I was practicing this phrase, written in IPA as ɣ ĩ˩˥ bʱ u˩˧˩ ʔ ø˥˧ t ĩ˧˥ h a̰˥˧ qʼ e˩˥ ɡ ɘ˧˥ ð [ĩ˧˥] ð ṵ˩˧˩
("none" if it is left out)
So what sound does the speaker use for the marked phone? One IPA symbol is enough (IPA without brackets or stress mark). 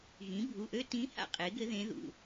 ẽ˧˥